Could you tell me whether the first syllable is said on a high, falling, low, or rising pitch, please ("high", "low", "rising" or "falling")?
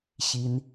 rising